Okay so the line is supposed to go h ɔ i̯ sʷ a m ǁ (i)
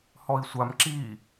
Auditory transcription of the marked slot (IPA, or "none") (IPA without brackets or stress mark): i